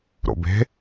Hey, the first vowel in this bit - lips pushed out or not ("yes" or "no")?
yes